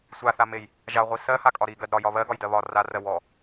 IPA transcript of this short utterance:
sʷaθamej | ʒaʁʷi sɜhakʼɒ ɾiɡɜd ɾɒjɒ βɜɡɒjdɜ βɒ rarɜ wɔ

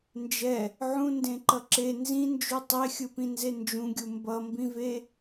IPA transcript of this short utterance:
nd͡ʒɛ | ʕũndẽǃʌ ǁe nzĩnd͡ʒu tˤexʲɯpĩnze nd͡ʒũɡʲu mbʌmbĩve

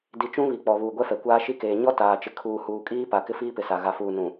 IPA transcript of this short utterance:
di˨t͡ʃũ˦ βi˨k͡pɔ˨ βuː˨ɡʷɛ˦fɛ˨ kʷaː˦ʃi˦keː˨ ɲɔ˦taː˨t͡ʃɪ˨ kʰuː˨huː˨kʼiː˦ pa˨ kɪ˦fiː˦pɪ˨ sa˨ ɣa˨fuː˨ nũ˨

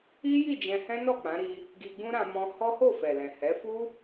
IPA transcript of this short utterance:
i˦ji˦˨ d͡ʒɛ̃˧hɛ̃˦nɔ˦˨ k͡pã˨˦ɾi˧ | ɡi˧ɡ͡bũ˦ɾã˧ mɔ̃˧ hɔ˦ho˦˨fɛ˨lɛ̃˨ hɛ˨˦fu˦

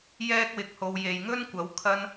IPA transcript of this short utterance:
jɛː˥k̚wɪ˧k̚ho˧w je˨jŋɵ˥nkʷɐ˨˥w kʰɐ˥n

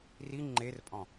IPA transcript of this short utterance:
ri ŋ͡ǃerpʼɔ̃

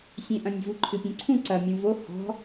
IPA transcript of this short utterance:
sʲẽʔɐ̃nʲvu ǃʰɨpʲẽǀʰũ ǀɐmʲũ vo hɔ̤

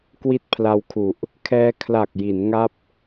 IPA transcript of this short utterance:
kwi˦˥t̚pʰla˧wkʰu˨˩ʔ | kʰɛː˧ kʰla˨˩k̚ji˩˦n ŋa˥˩p̚

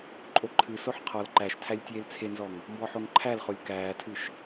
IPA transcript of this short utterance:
ǃʼoǃʰɨsoħ qʰɔl ǃæʃtʰælʲ tʲeːlt͡sʰenzɔŋ | mbɔħoŋǃʰælχolʲ kæːtʰɨʃ

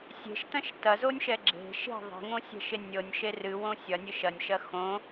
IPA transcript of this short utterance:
sʲe̤ʃtɐ̃ʃ tɐzonʲʃɛ ɡ͡ǁe̤ ʃe̤ ðˤe̤ŋõsʲɛ̤ʃe nʲɤnʲʃe rɨwõ sʲɐnʲɨ ʃɐnʲʃɐ xõ

